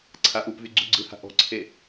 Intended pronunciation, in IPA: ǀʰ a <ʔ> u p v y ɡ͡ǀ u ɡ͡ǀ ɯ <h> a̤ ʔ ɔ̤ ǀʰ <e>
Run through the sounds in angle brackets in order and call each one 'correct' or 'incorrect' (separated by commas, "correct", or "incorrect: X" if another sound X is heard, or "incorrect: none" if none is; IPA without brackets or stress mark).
correct, correct, correct